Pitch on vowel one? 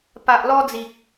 low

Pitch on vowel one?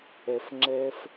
low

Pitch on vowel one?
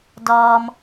low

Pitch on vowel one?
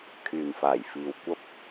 low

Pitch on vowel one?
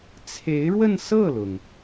rising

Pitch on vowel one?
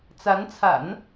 rising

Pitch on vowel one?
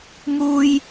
high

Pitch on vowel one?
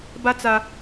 high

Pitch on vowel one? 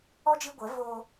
high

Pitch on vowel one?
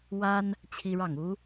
high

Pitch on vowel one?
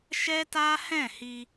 high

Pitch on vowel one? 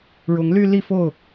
rising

